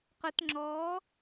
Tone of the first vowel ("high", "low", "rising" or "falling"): rising